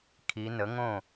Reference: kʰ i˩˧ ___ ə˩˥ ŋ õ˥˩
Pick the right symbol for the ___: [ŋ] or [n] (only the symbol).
n